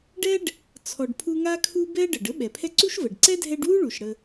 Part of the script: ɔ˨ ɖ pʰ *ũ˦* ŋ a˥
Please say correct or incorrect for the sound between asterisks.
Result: incorrect